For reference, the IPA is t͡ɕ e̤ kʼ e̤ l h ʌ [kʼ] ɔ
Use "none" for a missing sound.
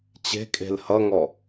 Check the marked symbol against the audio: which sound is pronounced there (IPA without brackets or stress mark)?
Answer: ŋ